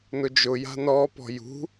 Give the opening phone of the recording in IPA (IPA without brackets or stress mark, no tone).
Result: n